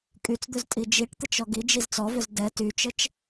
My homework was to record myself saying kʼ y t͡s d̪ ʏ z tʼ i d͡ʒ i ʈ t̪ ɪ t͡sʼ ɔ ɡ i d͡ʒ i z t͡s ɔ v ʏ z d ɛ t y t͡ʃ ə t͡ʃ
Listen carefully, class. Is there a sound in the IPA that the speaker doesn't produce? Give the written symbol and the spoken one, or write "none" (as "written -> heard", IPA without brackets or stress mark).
t͡sʼ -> t͡ʃ